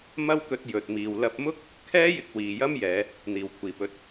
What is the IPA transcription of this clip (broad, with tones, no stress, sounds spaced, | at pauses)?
m ɐ˥ w k ɵ˧ t̚ j ɵ˨ t̚ m iː˨ w l ɐ˧ p̚ m ʊ˥ k̚ | kʰ ɛː˥ j ɪ˧ k̚ w iː˨ j ɐ˥ m j ɛː˨˧ | n̪ iː˨˩ w kʷʰ iː˨˩ p ɵ˨ t̚